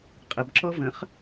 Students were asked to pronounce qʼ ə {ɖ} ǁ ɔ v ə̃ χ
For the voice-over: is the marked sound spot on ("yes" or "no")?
no